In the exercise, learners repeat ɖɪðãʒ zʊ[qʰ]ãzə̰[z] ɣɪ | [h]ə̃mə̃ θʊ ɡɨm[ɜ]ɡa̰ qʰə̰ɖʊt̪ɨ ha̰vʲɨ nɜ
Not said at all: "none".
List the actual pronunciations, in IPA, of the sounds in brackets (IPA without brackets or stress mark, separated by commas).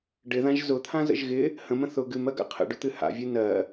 t̪ʰ, ʒ, h, ɜ